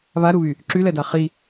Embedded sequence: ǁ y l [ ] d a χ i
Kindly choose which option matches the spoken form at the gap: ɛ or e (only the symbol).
ɛ